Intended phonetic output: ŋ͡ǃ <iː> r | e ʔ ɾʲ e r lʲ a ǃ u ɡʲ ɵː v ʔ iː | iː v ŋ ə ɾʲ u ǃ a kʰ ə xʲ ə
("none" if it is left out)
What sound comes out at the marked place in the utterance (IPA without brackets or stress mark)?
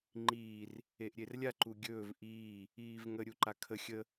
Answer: iː